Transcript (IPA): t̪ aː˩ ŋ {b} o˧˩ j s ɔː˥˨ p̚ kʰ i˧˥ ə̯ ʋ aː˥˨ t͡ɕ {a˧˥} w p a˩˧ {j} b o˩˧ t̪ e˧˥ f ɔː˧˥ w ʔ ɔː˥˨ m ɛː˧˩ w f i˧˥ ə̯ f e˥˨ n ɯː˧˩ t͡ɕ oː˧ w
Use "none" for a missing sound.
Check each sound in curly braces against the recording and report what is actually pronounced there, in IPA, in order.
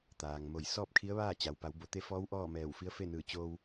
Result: m, a˩, w

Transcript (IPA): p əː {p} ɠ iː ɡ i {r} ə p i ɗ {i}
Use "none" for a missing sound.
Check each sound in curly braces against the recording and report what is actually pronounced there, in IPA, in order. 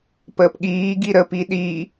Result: p, ɾ, i

